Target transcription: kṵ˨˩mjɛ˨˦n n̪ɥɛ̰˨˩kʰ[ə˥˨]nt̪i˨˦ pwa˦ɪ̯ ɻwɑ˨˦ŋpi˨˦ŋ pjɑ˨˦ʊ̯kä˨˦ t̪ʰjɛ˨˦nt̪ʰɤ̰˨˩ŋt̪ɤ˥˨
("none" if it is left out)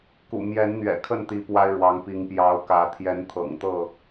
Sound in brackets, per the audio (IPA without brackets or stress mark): ə˥˨